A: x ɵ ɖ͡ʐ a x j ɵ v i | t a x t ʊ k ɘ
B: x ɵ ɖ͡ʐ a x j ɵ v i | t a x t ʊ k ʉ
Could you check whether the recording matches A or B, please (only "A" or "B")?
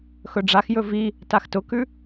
B